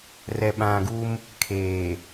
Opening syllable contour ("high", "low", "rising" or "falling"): low